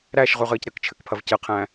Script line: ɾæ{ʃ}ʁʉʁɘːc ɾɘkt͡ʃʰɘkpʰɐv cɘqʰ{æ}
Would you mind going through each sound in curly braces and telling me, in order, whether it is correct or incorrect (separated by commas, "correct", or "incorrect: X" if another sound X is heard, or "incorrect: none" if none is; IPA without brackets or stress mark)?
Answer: correct, incorrect: æ̃